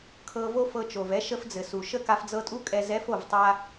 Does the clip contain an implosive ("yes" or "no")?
no